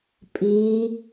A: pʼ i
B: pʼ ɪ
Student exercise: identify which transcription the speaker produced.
A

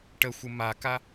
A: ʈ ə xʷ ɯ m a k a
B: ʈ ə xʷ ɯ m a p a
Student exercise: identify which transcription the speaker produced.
A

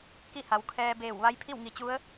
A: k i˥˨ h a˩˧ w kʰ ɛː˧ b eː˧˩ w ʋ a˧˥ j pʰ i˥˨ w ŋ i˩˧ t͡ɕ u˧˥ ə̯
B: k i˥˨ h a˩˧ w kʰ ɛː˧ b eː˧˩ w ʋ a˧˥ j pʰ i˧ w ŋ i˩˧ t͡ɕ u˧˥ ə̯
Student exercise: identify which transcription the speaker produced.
A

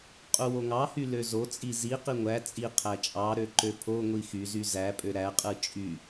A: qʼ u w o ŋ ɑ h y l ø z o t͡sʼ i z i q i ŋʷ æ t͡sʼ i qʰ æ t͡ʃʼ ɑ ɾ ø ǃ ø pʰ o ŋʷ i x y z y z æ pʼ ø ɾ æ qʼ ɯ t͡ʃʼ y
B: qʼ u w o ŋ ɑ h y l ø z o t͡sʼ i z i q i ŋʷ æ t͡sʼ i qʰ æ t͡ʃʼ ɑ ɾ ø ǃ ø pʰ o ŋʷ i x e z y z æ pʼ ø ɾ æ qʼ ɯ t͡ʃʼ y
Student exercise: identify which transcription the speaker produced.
A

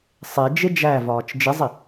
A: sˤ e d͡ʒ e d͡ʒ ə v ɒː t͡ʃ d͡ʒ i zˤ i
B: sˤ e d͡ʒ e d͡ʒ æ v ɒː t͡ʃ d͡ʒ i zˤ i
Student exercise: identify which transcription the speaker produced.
B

